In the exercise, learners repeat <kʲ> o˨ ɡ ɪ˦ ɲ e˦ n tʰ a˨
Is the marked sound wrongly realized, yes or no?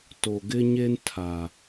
yes